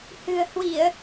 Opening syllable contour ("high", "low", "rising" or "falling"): low